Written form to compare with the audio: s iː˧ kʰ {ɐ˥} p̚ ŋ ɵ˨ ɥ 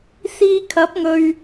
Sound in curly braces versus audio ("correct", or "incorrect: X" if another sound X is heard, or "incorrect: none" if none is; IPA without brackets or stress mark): incorrect: ɐ˨˥